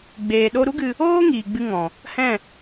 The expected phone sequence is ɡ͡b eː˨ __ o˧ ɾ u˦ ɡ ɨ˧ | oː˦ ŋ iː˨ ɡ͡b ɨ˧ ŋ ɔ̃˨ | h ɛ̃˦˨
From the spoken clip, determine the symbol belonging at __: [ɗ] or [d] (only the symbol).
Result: ɗ